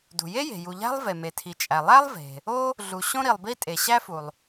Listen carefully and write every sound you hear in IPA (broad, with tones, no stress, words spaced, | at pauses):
dṳ˩je˥ je̤˩ ju˩ʎæ̤˥lˠ ve˩me˩tʰi˩t͡ʃʼæ˩ lˠæ˥lˠve̤˩ | o˥ | ɮu˩ ɕõ˥ɾi˩lˠbi˥ tʼe˩ɕæ˥fu˩lˠ